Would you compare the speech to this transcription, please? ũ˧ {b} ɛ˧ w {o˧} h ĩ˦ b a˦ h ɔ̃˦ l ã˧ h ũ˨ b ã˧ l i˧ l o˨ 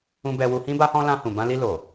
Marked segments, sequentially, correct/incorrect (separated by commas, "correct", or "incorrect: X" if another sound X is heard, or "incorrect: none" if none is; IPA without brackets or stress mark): correct, incorrect: u˧